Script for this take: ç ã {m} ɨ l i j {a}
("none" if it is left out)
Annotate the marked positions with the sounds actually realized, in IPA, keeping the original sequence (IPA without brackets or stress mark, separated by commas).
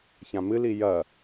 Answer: m, ɐ